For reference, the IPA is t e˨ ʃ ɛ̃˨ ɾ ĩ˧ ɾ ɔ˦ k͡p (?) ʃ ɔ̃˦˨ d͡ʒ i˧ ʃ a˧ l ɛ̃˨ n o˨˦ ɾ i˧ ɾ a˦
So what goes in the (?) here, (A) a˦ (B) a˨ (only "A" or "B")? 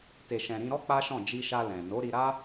A